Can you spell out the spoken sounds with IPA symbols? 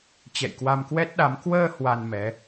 t͡ɕ ɛ̰˧˨ j k w a˧ m k w ɛ˦˥ t̚ ɗ a˨˦ m k w əː˧ h w a˧ n m ɛ˨˦

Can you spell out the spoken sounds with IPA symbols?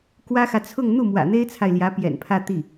k w ä˥ x ä˨ t͡sʰ ʊ˥˧ ŋ n̪ u˥˩ m w ä̰˨˩ n̪ e˥ ɪ̯ t͡sʰ a˨ ɪ̯ l j ä˧˥ p j ɛ̰˨˩ n pʰ ä˥˧ t̪ i˥˩

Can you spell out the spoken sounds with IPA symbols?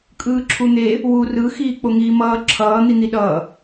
kʼ ɯː ǁʰ u n̪ e | w u r ɯ x iː k͡p o ŋ iː m ʌː ǁʰ ʌː n̪ i n̪ i ɗ ʌː

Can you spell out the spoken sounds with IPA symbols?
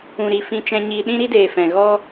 ũ˨ ɾ i˨ f ĩ˧ t͡ʃ ɛ̃˧ ɲ iː˧ ɗ ĩ˦ ɾ i˦ d eː˨ f ɛ̃˨ ɣ ɔ˦

